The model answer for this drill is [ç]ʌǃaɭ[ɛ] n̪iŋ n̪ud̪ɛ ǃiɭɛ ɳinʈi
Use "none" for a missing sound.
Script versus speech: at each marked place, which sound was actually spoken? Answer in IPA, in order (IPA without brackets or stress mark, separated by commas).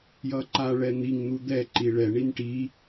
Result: j, ɛ